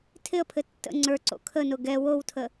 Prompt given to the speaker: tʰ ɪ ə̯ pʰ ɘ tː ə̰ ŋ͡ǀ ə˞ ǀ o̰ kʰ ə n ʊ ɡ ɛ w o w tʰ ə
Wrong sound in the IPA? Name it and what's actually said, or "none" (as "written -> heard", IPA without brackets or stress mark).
none